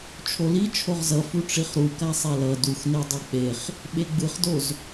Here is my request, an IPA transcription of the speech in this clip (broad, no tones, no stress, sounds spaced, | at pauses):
t͡ʃʰ o l i t͡ʃʰ o ʁ z ʌ f u ʈ͡ʂ i χ ɾ u k a sˤ ɛ l ʌ d u x n e dˤ e k͡p e χ | ɓ e ɡ͡b ɯ χ d o z